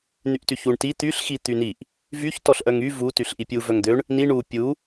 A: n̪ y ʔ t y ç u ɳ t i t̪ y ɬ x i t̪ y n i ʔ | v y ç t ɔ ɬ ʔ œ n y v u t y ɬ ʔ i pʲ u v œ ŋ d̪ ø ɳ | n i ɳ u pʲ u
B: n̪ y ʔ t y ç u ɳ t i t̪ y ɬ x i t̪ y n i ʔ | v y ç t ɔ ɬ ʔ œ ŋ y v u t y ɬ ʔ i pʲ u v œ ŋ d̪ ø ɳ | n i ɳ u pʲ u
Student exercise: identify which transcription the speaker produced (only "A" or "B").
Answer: B